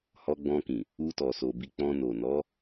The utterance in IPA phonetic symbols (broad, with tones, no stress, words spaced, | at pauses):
hɔ˧ɡ͡bɔ̃˧kĩ˨ | u˧tɔ˨so˨ bi˧k͡pɔ̃˧ no˨nɔ˨˦